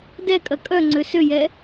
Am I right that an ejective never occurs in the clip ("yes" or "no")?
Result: no